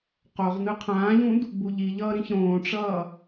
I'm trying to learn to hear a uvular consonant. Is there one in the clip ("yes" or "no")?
yes